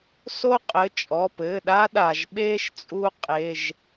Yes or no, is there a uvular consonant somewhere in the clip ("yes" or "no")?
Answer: yes